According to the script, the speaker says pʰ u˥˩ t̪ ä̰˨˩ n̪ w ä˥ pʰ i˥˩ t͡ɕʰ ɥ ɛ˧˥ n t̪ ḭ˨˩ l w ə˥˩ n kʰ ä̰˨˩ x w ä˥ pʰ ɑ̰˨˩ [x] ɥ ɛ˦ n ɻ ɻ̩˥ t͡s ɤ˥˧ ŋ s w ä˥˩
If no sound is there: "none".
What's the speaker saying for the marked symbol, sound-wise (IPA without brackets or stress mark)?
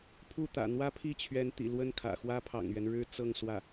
ŋ